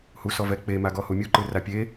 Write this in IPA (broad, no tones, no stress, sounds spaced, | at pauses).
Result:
h u s ɔ v ɛ k͡p e m a ɡ ɔ h u mʲ u ǃ ɯ r a pʲ e